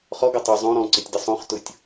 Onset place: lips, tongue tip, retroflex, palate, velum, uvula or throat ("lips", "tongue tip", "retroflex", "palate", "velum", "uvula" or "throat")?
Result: uvula